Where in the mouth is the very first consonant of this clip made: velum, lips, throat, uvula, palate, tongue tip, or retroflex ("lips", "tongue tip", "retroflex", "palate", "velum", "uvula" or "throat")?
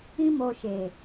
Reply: lips